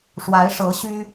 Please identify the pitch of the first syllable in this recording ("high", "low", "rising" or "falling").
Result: rising